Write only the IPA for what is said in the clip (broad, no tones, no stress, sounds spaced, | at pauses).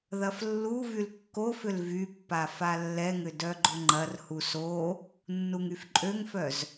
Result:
ð ɐ f lː u v y l kː o f ʏ l v y pː a f a lː ɛ ŋ ʏ d œ ɡ͡ǃ ʊ ŋ͡ǃ ɐ r h u s o | nː u ŋ y f ǃʼ ø ŋ f œ z